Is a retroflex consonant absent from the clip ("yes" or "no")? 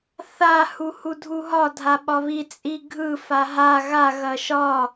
yes